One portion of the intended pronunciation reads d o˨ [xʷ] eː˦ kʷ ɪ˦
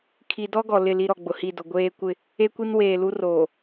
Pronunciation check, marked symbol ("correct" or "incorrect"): incorrect